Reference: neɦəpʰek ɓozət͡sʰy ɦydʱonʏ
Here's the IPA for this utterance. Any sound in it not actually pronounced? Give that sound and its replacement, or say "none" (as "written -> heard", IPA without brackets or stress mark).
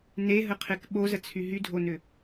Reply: pʰ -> qʰ